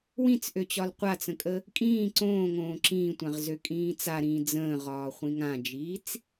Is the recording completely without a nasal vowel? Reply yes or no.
no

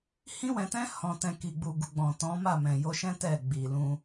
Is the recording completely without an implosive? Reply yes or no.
yes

